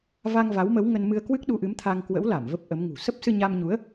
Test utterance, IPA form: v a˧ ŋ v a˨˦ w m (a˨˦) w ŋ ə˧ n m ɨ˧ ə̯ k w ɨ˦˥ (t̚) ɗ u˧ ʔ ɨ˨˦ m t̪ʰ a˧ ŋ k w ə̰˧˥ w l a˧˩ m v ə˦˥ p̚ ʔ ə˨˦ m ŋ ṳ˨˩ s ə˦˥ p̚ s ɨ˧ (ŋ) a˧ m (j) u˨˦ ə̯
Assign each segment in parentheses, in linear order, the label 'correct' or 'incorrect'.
incorrect: ə˨˦, incorrect: k̚, incorrect: ɲ, incorrect: ɲ

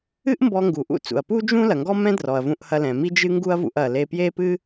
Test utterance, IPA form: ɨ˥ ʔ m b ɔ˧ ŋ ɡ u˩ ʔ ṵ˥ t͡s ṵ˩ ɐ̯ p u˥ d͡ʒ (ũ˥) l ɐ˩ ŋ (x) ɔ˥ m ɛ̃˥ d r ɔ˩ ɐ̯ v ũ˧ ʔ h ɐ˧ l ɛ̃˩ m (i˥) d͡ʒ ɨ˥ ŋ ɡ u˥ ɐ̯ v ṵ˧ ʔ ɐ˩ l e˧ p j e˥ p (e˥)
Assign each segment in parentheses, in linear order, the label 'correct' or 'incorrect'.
correct, incorrect: ɡ, correct, incorrect: ɨ˥

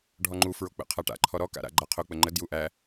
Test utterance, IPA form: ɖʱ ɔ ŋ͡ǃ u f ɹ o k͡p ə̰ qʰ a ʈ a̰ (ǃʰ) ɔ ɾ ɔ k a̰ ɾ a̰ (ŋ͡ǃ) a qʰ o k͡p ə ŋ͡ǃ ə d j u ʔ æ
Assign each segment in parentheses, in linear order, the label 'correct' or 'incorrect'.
correct, incorrect: ɡ͡ǃ

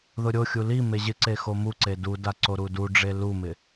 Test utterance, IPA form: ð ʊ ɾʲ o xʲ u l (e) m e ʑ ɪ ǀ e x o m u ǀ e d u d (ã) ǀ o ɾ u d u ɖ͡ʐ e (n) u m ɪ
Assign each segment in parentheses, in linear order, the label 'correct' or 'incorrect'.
incorrect: i, incorrect: a, incorrect: l

